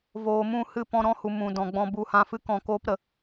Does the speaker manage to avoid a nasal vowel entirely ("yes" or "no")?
no